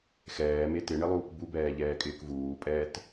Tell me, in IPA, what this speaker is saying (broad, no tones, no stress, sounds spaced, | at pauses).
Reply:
x ɛː m e t ɪ ɳ ɪ lˠ uː k b u b ɛː ʎ ɛː kʼ ɪː k v uː pʼ ɛː t